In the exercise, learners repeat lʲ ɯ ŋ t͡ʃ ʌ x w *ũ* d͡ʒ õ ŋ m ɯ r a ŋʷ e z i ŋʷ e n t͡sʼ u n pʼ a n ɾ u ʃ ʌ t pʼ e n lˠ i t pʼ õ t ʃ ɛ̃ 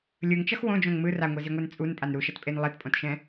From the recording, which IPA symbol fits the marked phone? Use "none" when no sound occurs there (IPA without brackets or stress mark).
õ